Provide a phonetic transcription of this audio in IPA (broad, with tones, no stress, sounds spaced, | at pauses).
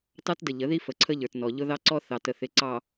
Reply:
t ɑ˦ t d ə˨ ʎ ə˨˦ ð i˦ f ə˨ ǀʰ ə˦ ʎ ə˞˨ t n ɔ˨ ʎ ʊ˦ ð ɑ˦ ǀ ɔ˦ θ ɑ˨ t ə˨ θ ɪ˨˦ ǀ ɑ˨